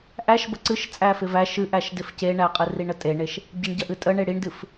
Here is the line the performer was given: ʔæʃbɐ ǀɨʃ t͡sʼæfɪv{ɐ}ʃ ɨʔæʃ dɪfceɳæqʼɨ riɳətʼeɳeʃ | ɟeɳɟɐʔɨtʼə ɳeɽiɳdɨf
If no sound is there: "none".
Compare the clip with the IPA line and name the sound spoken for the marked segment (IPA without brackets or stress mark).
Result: æ